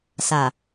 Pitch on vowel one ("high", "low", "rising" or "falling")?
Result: low